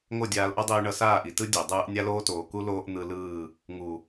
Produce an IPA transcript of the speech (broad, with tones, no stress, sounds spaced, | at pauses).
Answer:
ŋ o˦˨ dʲ aː˧ l ʔ ʌ˦ dˤ iː˧ ɳ ʌ˧ s aː˦˨ ʔ i˨ t ɯ˦ dʲ e˨ dˤ ɯː˧ ʔ nʲ a˦ l oː˦ t oː˨ k u˦ l oː˦ ʔ n̪ ɯ˧ l ɯː˦˨ | ŋ u˨